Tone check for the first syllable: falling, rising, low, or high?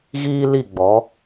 high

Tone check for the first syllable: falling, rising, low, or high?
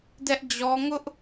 high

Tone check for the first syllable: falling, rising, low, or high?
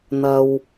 high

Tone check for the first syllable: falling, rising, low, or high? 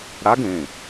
rising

